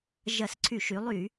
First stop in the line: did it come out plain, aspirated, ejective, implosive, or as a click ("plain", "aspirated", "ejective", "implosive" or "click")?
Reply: click